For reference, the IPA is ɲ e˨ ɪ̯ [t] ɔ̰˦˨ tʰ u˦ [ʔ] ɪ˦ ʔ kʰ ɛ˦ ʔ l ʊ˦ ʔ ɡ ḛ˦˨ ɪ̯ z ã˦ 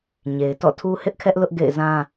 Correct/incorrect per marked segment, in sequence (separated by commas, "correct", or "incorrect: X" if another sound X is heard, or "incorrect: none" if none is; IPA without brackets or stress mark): correct, incorrect: h